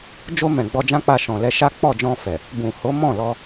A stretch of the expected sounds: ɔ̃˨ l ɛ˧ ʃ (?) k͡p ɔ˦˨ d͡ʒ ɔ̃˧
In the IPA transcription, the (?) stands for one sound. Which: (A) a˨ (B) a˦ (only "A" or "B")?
B